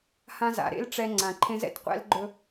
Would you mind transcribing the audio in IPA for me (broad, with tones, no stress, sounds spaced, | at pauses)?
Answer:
h ã˥ z a̰˩˧ ɾ ḛ˥ l ʈ͡ʂ ɛ˧ ŋ͡ǀ ã˩ ǃʰ ẽ˧˥ z ɛ̰˩ t qʷ ɛ̰˧˥ l ɡ͡ǃ ɵ˧